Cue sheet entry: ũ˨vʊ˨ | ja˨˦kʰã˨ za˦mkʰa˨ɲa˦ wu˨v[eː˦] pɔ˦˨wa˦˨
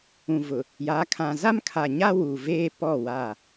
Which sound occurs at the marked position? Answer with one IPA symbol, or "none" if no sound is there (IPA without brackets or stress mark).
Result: eː˦